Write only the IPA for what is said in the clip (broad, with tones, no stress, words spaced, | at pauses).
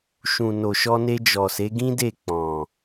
ʃũ˨ no˨ʃɔ˧ne˧ d͡ʒɔ˨se˨˦ɡĩ˦de˦˨ k͡pɔ̃˨